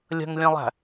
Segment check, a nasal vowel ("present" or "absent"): present